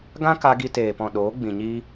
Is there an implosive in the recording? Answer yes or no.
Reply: yes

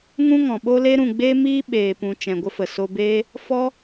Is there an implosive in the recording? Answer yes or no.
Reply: yes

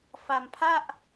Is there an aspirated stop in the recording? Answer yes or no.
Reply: yes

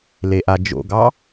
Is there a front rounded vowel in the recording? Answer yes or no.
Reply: no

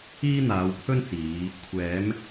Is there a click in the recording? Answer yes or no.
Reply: no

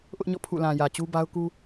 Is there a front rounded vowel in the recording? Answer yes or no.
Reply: no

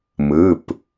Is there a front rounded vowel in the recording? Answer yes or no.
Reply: no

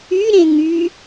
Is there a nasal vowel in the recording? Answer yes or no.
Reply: yes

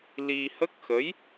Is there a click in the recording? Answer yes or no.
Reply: no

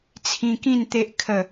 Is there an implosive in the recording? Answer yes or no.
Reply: no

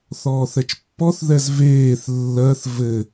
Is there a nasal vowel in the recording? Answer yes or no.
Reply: no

